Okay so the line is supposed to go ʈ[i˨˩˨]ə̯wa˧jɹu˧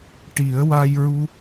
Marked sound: incorrect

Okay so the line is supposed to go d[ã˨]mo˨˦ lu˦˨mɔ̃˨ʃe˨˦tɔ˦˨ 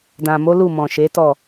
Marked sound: correct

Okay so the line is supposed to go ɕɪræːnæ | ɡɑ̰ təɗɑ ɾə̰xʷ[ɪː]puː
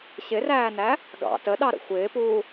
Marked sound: correct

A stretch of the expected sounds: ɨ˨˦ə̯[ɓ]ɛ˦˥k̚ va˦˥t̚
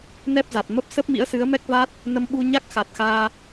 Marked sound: incorrect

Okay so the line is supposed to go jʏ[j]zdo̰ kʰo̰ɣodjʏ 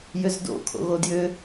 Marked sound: incorrect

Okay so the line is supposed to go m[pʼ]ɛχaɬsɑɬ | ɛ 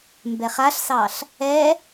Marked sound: incorrect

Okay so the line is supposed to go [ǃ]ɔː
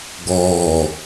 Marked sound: incorrect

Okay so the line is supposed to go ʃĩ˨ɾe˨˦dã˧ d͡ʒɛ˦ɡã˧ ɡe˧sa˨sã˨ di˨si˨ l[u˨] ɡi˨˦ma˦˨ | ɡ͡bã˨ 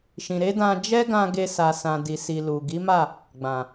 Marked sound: correct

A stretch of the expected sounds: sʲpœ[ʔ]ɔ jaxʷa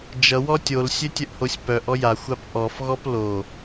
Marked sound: correct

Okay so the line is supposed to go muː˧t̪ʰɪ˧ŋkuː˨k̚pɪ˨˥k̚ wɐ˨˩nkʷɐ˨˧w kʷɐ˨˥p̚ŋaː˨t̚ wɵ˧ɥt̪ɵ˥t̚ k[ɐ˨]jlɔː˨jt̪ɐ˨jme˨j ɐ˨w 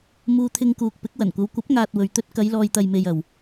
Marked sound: incorrect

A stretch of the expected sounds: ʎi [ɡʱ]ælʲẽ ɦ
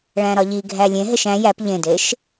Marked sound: correct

